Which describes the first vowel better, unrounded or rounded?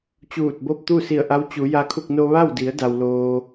rounded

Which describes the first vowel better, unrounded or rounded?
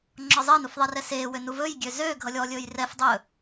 rounded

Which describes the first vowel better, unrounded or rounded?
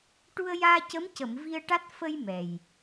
rounded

